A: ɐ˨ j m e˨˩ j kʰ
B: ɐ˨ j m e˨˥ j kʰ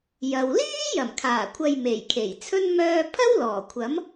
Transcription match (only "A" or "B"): A